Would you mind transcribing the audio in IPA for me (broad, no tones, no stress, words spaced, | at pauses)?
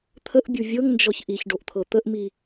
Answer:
t̪ʰəʔbʲu vʲɤŋnd͡ʒɔç ʔiçɖoʔt̪ʰɤ t̪əʔmi